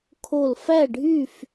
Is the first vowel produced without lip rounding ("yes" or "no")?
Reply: no